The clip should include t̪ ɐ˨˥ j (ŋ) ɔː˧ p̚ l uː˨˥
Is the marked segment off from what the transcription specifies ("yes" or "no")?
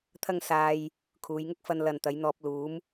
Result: yes